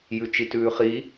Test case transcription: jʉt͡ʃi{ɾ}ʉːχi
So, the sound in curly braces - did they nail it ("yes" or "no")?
no